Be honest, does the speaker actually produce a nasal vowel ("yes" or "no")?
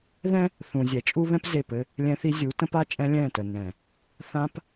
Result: yes